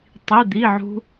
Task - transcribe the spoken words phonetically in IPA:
tˤi˩˧˩d̪i˩˧˩ ʕṳ˦˥

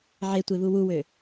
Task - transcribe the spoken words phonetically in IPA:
ʕetʷeβu wuwø

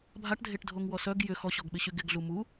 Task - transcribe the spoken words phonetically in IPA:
bʱaʈdʱeʈdʱoŋwɔ sœɡ jʏ xɔɕɔɡɓɪɕy ɡɪɡɮu mu

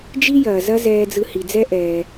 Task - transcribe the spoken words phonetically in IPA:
d͡ʒi˦jɐː˨zɐ˦ zɛː˧d͡zɯ˧ hi˨d͡zɛ˦ ʔɛː˧

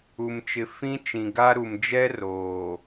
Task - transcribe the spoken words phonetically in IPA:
u˨mt͡ʃɪ˨ fĩ˦ t͡ʃĩ˨ ɡa˦ɾu˨m d͡ʒɛ˦roː˨

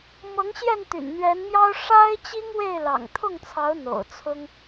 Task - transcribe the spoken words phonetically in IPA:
mɤ˨˦ŋɕjɛ˥˨n t̪y̰˨˩nn̪ɥɛ˨˦nmjɑ˦ʊ̯ ʂa˦ɪ̯t͡ɕi˦ŋ we˥˨ɪ̯lɑ̰˨˩ŋ t̪ʰʊ˥˨ŋt͡sʰɑ˨˦ʊ̯ n̪o̰˨˩ʊ̯t͡sʰʊ˦ŋ

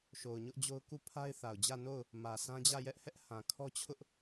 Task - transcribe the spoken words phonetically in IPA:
ʃo˨ʊ̯ɲʊ˦ʔd͡ʑo˦ʊ̯ ku˦˨pʰa˦ɪ̯ θa˨ʊ̯d͡ʑä˦˨no˦˨ʊ̯ | mä˨sʰã˦d͡ʑä˦˨jɛ˦ʔ hɛ˦ʔhã˨kʰɔ˦t͡ɕʰʊ˦ʔ

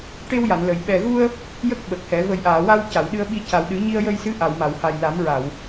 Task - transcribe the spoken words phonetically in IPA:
ʈe˧wja˨˩˨nlə˨˩˨j ɓɛ˨˩ɣu˧ə̯ | jə˦˥k̚ɓə˨˩k̚hɛ˨˩˦ və˨˩jʔaː˨˩˨ wa˧w ca˨˩˨wɗɨ˧ə̯ɓi˧ ca˨˩wɗɨ˨˩˦ɲi˧ə̯ jə˧jsɨ˧˥ ʔa˨˩˨wma˨˩˨wha˨˩j la˨˩˦mɹa˨˩˨w

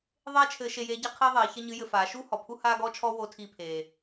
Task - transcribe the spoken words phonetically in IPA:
ðˤeː˥t͡ʃʰɘː˧ ʃe˧jeː˧˥ɟa˥qʰeː˥ ðˤeː˩˧çɐ˥ɲɨ˧˥jɘ˧ faː˩˧ʃuː˥hɔ˩ pʰu˥haː˥ɡɔ˥t͡ʃʰɔ˥ wo˧˥tʰiː˧pʰeː˩

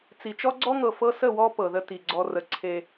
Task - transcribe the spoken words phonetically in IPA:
t͡si˨t͡ʃɔ˦ɡ͡ǀɔ˦ŋɤ˨ fɤ˦sə˦˨wɔ˦ pɤ˨ðə˦ti˨ ɡ͡ǀɔ˨rə˨ ǀʰe˦

